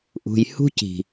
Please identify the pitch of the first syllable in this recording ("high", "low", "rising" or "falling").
low